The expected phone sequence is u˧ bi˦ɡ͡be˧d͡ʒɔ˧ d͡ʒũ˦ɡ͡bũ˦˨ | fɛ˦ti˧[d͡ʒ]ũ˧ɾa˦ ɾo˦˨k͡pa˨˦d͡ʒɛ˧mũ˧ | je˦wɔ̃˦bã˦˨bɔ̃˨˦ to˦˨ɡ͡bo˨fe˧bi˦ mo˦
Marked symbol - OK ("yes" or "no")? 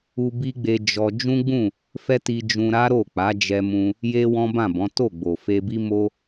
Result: yes